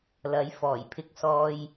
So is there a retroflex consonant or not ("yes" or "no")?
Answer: no